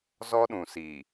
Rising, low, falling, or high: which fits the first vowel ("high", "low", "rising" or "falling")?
high